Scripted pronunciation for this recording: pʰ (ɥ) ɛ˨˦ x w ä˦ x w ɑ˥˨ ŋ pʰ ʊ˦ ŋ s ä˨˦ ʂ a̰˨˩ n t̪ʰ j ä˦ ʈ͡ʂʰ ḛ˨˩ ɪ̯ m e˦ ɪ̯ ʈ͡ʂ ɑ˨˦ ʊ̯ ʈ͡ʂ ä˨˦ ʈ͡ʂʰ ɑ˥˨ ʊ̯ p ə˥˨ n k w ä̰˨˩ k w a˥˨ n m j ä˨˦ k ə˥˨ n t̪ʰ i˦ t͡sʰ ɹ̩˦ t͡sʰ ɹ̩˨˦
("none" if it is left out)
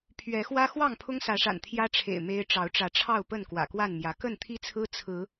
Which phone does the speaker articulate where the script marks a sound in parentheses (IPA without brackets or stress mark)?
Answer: ɥ